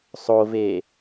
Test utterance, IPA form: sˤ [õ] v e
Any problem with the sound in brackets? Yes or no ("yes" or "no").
yes